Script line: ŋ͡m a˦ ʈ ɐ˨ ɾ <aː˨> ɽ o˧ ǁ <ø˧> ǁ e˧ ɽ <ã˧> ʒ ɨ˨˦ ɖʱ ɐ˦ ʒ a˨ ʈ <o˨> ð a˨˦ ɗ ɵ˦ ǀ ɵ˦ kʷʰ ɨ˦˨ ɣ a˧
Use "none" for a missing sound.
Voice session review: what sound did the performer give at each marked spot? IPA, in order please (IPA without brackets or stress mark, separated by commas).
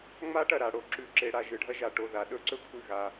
a˨, ʉ˧, a˧, o˦˨